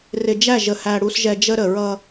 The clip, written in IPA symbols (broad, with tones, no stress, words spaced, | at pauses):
rɪ˨d͡ʒæ˦˨ʒə˨hæ˨ ɽu˨sʒɛ˨ d͡ʒə˦ɾə˨ ɹʌ˦